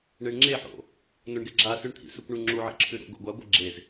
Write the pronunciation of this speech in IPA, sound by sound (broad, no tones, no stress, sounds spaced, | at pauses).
ɳ e ɳ ŋ͡ǁ e ħ o̰ | n o ɳ ɡ e ɡ͡ǁ a s ʉ ɳ t̪ʰ ḭ s ɵ kʷ ɳ ʉ ŋ͡ǁ u ʕ ḭ ǁʰ ʉ ɾ o̰ ɡ o̰ ɡʷ a ɡʷ ɨ ɡ͡ǁ e z